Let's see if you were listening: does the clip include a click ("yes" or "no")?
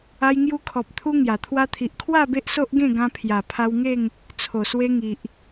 no